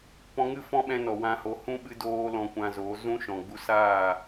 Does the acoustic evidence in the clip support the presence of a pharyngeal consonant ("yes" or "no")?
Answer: no